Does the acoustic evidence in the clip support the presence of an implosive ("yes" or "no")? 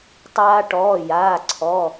no